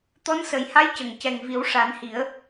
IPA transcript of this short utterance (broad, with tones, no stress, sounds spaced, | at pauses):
t̪ ɔ˧˥ n s ə˨˩ j h a˧˥ j c ə˨˩ ŋ c ɛ˨˩ ŋ v i˨˩˦ w ʂ a˨˩˦ n h i˨˩˦ ə̯